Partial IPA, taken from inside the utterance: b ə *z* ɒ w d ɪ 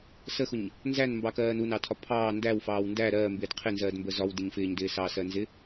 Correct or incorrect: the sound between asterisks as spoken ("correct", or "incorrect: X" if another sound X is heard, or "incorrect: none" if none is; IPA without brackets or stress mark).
correct